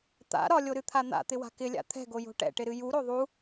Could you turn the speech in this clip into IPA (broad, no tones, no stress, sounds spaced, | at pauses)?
t̪ a̰ ɾ ɒ lʲ o ɾ ɨ t̪ʰ a n̪ a̰ t̪ ɪ w a̤ k ɪ lʲ a̰ t̪ʰ ɛ̤ ɡ o j o̤ ʈ ɛ̰ ʈ ɪ ɾ ɨ j u ɾ o ðˤ u